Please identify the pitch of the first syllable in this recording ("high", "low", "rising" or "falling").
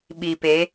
low